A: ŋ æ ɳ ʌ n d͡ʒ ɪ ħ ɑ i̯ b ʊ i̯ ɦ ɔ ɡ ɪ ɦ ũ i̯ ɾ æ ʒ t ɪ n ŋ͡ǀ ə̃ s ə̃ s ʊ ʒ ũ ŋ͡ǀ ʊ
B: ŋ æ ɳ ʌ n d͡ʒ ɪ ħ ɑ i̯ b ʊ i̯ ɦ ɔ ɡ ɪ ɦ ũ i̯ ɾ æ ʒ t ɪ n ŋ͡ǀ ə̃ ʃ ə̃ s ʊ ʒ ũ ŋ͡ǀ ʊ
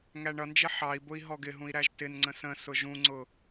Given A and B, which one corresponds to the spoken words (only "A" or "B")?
A